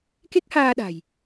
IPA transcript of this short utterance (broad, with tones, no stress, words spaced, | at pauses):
ke˦˥k̚haː˧ɗa̤˨˩j